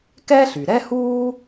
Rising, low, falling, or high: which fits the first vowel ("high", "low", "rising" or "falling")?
high